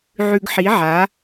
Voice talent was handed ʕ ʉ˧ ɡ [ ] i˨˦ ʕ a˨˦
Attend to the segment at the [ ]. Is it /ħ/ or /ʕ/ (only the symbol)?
ħ